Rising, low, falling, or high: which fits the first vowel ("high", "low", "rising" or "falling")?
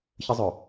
high